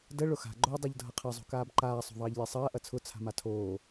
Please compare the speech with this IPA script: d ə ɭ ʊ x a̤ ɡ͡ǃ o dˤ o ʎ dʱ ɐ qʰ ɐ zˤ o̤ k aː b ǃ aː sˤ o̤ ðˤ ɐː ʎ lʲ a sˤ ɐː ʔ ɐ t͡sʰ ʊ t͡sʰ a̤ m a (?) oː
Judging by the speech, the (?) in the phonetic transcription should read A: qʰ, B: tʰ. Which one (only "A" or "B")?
B